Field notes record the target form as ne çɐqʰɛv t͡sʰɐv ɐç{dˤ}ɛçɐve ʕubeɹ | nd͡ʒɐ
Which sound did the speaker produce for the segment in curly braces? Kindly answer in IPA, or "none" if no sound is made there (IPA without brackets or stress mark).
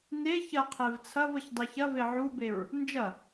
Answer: dˤ